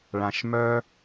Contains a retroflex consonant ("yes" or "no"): yes